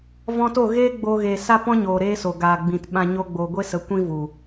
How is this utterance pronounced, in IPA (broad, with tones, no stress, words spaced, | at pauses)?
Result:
vɔ̃˧to˦˨ ɣeː˦ ɡ͡boː˧ɣeː˨ sa˦pɔ̃˦ɲoː˨ ɾeː˦so˨ ɡaː˨ɡ͡bĩ˨t ɓã˧ ɲo˧ɡ͡boː˨ɡʷe˦sə˨˦ kʷĩ˦vu˨